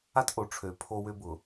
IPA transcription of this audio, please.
a˦tʔo˨ʈ͡ʂʰø˨˦ pʰo˦wʏ˦bʊ˨

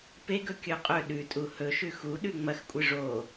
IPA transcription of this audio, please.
peɡɵ kʲɵqʼɵ ɗʉ tʼuhɵ ʃʉxu ɗʉŋ͡mɐxkʷʼɨ ʐo

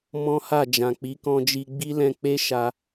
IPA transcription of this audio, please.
mɔ̃˦ha˦˨ d͡ʒã˨k͡pi˨˦kɔ̃˧d͡ʒi˧ ɡ͡bi˦lɛ̃˧k͡pe˦ ʃa˧

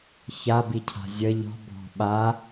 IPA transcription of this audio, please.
çabicʰa̤ zʲə ʎɔ̤ bʱɔ̤ɓa

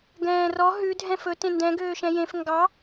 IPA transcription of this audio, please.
ɡɛ̃ːrɔ ɦʉ dʱɛ̃fɵ tẽndɛ̃ ɡøːʃɛ̃jẽf ŋɡɑ

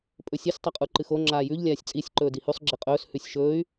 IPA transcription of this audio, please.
pʼɵsʲɐsʲ tˤɐqʼuǃɨxo ŋ͡ǁaːjʉʎ lʲaːsʲt͡sʼisʲ ǃɵːdihʉsˤ ɡ͡ǁiqʼɵːs hʉsʲʃɵːy̯

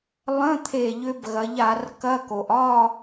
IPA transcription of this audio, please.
lˠə̃˧˥˧ t̪ʰe˦˨ʎʏ˦˥bɣɐ˨˥ʎ a˧˩˧rkɐ˧˥˧ko˩ʔ ɒ˦˨

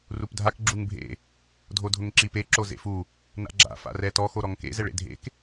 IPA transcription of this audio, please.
rupdʱak ɡ͡ǁuŋbʱḛ | dʱodʱʊŋǁip e ǁozḛfu | na̰ɡ͡ǁa̰ fa̰rɛtɔ xoɾɔŋkḛ zɛɭḛdʱḛk

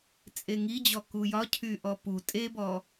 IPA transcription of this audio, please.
t͡sʼeŋid͡ʑɔ kujɒ cʰyʔɔpu tʼebɔ

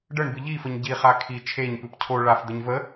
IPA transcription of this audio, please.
ɖəɳbɨ ʎifəɲ ɟiχa kʰi t͡ʃʰeɲpɨp cʰo ɭafd̪əɲ və

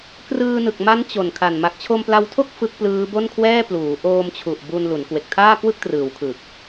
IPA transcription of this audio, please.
krɯː˧nɯ˨˩k̚ma˦˥n t͡ɕo˨˩nkʰa˨˩n ma˨˩k̚t͡ɕʰo˧mpla˧wtʰo˥˩k̚ fɯ˦˥k̚plɯː˦˥bo˥˩nkʰwɛː˥˩ pluː˩˦ʔoː˧mt͡ɕʰu˨˩ʔ bu˧nlu˩˦n kwe˨˩k̚tʰaː˥˩kwɯ˥˩k̚trɯː˩˦w kʰɯ˨˩k̚

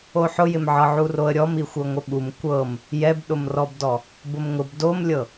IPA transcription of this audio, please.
oħʊjɪmʕɤ ʕuroə̯ɾʲɔm ixʷɤŋʷɪɓum kʷɤm | jɛbɗʊmrɔbdɔ | bʊmŋʊb domlʲɤ

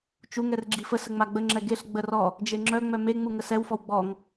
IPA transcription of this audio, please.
t͡ʃuŋɛr ɡ͡ǁifəsə ŋ͡maɡ͡bəŋ͡ǁɛ ɡeɬɡ͡bə rɔ | d͡ʒeŋ͡ǁœŋ͡mœ meŋ͡mu ŋəsɛwfɔw ɡ͡bɔŋ

